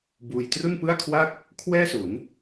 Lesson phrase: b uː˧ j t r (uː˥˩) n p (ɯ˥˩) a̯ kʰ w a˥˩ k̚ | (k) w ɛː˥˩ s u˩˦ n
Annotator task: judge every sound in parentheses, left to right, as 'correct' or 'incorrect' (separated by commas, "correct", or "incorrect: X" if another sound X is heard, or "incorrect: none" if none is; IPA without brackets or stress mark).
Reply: incorrect: u˥˩, correct, incorrect: kʰ